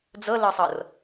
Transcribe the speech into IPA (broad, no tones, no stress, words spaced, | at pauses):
d͡zɤlɤsˤɤr